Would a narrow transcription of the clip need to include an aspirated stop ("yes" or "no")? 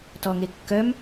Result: no